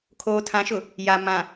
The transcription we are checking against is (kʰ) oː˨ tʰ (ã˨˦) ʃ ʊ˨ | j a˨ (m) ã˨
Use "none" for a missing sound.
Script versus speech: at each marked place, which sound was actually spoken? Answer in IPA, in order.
kʰ, ã˨˦, m

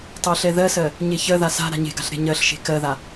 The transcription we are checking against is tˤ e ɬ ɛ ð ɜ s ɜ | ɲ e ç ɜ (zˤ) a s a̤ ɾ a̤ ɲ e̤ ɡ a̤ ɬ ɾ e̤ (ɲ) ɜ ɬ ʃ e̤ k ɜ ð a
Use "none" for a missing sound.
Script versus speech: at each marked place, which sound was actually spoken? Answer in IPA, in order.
ð, ɲ

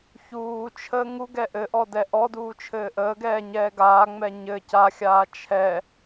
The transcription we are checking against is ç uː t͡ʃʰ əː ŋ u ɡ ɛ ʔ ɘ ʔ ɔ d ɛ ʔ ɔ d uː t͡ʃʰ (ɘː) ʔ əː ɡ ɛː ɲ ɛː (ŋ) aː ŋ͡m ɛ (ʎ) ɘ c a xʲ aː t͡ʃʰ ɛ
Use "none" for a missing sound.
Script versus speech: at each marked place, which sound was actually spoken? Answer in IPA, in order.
ɘː, ɡ, ɲ

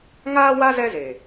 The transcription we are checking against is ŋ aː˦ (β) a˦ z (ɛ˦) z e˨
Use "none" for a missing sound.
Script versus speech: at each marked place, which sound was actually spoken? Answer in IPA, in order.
w, ɛ˦

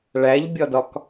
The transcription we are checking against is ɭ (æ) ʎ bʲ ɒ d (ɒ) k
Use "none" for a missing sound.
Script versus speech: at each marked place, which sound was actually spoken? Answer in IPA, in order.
æ, ɒ

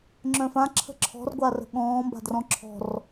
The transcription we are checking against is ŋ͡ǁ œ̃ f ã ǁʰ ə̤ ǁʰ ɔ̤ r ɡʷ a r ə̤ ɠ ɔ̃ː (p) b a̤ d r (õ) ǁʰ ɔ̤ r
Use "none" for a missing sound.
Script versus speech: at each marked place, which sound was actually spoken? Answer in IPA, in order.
m, ɔ̃

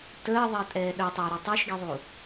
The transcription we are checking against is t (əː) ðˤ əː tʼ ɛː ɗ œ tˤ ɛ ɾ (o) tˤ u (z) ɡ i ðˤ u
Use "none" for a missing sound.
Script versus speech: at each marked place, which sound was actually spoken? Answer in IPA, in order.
əː, ɔ, ʃ

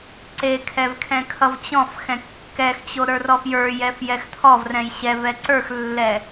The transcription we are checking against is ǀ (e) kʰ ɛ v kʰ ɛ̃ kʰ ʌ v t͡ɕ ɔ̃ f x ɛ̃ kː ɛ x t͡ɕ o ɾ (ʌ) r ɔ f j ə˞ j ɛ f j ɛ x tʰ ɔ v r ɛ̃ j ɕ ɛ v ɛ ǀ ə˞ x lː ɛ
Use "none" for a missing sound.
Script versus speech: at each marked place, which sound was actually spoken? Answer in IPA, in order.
e, ə˞

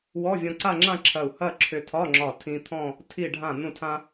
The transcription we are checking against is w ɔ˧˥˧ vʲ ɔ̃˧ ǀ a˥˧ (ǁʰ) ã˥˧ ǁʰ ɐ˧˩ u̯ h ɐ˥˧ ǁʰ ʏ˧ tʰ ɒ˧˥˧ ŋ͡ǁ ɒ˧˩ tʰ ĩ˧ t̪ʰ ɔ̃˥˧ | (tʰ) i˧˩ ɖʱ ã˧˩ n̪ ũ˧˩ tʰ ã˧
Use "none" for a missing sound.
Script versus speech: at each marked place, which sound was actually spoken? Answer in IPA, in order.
ŋ͡ǁ, tʰ

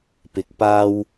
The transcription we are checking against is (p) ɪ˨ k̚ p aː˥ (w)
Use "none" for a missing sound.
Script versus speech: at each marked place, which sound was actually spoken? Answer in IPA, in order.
p, w

